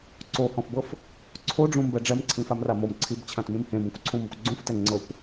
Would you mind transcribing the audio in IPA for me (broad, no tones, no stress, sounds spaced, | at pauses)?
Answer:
ǀ o h ɔ̃ f b ɤ f | ǀʰ o ɖ͡ʐ ũ m b ɛ ɖ͡ʐ ɛ m ǀʰ ĩ f a m r a m o m ǀʰ i b t͡ɕʰ ã t m ĩ m h ẽ b õ kʷ ǀʰ ũ m ɔ kʷ ɡ͡ǀ ũ f t ɛ ŋ͡ǀ ɤ kʷ